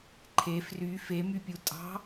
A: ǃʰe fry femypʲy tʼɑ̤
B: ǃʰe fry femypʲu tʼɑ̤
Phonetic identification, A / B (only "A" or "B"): B